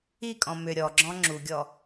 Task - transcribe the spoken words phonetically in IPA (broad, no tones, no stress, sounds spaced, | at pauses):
i kʼ ɔ̃ m ʏ ɾʲ ɔ ɡ͡ǁ ɔ̃ ŋ͡ǁ u ɡʲ ɔ